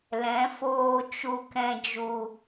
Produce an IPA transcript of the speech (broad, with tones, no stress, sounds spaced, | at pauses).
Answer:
l ɛ̃˨˦ f oː˧ t͡ʃ u˧ k ɛ̃˧ d͡ʒ u˨